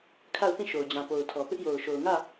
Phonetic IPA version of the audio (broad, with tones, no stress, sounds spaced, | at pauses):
kʰ a˦˨ ʊ̯ θ ĩ˦˨ ʃ o˨ ʊ̯ d͡ʑ ã˨ p o˨ ʊ̯ tʰ ɔ˨ p ɪ˦ ʔ j o˨ ʊ̯ ʃ o˨ ʊ̯ ŋ ä˦˨